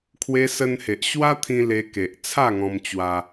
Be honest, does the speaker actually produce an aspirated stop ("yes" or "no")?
yes